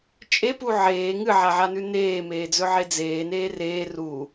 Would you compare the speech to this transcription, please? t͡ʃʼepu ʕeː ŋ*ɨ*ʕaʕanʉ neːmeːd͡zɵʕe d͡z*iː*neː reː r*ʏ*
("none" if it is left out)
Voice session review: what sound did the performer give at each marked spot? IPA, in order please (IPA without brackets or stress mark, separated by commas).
ɨ, eː, u